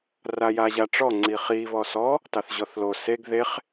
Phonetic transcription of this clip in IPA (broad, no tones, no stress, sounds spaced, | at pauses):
r a j a ʑ a ʈ͡ʂ ɔ ŋ͡ǀ i χ i β ɔ s ɔ | t ɑ θ ʑ ɔ θ l o s e ɡ ð e χ